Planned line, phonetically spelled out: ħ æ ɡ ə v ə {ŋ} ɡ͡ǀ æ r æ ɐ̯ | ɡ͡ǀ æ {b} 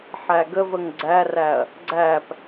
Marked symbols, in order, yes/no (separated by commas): yes, no